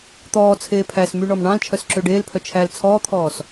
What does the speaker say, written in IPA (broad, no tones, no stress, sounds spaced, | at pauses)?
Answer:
t̪ ɔː t͡sʰ eː pʰ æ s m y ɳ ɔ m ɳ ɑ̃ l t͡ʃʰ œ s ǁ ø ɖ eː l pʰ œ t͡ʃʰ æ l t͡sʰ ɔː t̪ʰ ɔː s